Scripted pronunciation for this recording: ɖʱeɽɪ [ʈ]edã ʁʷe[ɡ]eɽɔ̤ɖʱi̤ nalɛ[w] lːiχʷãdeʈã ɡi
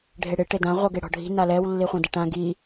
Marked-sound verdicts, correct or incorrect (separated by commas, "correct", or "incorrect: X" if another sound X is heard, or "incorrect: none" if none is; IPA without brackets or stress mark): correct, correct, correct